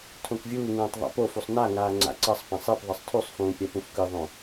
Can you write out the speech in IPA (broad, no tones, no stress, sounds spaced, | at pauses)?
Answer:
tʰ õ k vʲ uː ŋ ũː tˤ ðˤ a̰ p o f u sˤ n a ŋ aː ŋ͡ǀ a̰ ǀ ʌ sˤ p ã sˤ e p ðˤ ʌ sˤ tʰ u sˤ f ũː pʲ a p ũ f k ɯ ðˤ õ